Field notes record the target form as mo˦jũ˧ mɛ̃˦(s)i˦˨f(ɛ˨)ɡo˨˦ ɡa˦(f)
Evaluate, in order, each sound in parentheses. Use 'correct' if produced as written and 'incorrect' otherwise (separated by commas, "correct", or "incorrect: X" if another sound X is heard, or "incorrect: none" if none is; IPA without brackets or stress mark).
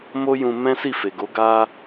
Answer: correct, incorrect: e˨, incorrect: none